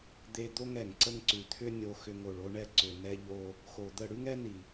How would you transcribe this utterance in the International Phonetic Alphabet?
d̪ e˧ d̪ o˦ ŋ ɛ˨ ŋ ǀ ə˦ ŋ ǀ ʉ˨ t̪ʰ ʏ˦ nʲ o˧ x ʏ˧ ŋ o˨ ɭ o˧ ɳ ɛ˧ ǀ ʏ˨ n ɛ˧ ʎ o˧ | x o˨ d̪ ə˦˨ ɽ ʉ˦ ŋ ɛ˦ n i˨

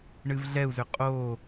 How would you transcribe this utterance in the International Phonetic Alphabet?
ɳ ɨ v ɮ ɛ u̯ z ʏ qʼ o

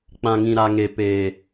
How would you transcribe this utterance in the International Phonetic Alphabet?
k͡p ã˨ ŋ ĩ˨ ɾ a˨ ŋ e˨ p eː˨

